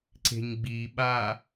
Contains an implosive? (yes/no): yes